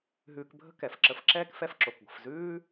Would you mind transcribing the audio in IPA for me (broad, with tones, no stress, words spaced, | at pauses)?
ɦʉː˧kbʱə̤˥kɛ˩fǁə˧f ǁɛː˥kfɛ˧fǁo˩k ɡʷə̤˩fzʉː˥